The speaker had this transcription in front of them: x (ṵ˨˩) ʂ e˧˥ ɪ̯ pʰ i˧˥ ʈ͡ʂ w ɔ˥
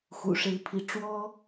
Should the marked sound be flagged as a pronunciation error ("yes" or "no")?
no